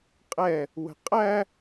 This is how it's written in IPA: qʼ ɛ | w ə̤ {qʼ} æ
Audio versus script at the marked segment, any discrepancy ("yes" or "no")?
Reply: no